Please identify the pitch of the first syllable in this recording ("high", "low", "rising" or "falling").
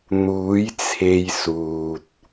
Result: rising